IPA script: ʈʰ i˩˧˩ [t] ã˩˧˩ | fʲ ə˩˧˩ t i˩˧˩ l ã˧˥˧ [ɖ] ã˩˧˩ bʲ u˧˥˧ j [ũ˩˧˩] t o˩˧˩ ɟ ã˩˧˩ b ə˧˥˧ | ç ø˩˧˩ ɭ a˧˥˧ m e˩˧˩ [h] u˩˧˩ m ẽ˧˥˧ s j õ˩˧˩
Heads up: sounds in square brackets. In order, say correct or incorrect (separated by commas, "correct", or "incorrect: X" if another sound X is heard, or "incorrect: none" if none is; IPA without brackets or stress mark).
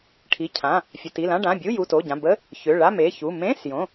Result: incorrect: cʰ, correct, incorrect: u˩˧˩, incorrect: ç